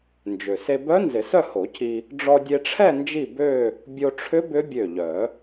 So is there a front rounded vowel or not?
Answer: yes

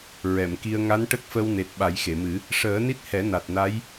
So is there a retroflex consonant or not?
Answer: yes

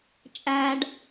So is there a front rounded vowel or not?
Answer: no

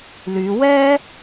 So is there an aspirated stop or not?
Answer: no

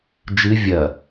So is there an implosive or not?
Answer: no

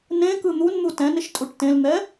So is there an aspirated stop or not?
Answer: no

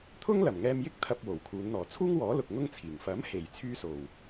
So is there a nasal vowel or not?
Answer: no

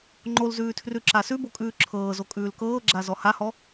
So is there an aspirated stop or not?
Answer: yes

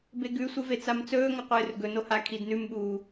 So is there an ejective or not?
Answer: no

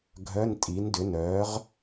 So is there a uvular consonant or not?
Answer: yes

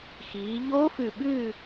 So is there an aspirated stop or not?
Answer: no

